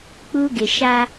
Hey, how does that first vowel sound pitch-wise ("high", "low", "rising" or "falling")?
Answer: high